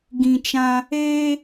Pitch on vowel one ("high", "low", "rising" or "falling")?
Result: low